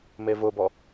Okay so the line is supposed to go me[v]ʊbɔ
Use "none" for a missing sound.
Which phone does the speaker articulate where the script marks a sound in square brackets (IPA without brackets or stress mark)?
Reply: v